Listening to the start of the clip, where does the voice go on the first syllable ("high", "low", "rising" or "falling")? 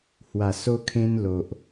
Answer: low